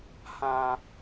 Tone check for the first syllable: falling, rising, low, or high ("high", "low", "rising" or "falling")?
low